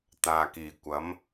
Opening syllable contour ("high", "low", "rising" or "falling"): low